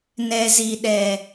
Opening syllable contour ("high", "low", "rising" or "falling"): low